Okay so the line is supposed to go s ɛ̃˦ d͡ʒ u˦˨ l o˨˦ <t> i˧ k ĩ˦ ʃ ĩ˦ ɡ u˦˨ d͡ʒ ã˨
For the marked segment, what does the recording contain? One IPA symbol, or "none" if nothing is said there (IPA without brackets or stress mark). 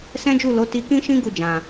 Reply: t